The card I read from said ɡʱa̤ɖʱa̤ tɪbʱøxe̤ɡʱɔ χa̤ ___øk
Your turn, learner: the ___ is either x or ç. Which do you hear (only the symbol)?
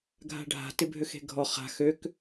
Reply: x